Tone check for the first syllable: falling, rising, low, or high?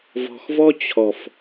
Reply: low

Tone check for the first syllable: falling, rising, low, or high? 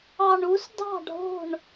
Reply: low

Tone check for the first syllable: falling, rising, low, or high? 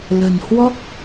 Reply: low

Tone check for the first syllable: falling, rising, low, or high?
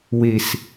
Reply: low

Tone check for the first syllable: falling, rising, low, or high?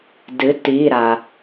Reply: rising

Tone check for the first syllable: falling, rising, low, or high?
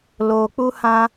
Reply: low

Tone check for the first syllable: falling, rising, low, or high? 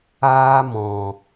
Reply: high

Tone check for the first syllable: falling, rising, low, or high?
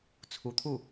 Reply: rising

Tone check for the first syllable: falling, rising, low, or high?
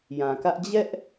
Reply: low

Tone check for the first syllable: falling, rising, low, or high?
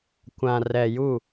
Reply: low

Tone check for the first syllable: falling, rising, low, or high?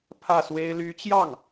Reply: falling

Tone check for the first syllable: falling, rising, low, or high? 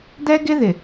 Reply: high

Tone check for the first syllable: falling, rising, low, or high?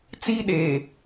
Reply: high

